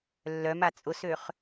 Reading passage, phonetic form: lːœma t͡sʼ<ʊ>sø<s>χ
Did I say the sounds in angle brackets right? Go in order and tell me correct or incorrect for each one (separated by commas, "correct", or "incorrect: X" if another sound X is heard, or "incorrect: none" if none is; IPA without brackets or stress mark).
correct, incorrect: none